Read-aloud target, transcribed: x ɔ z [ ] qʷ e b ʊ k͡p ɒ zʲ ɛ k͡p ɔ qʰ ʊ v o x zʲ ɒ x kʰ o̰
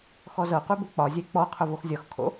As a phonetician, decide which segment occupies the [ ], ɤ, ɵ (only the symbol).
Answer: ɤ